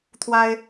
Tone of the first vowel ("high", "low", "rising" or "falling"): high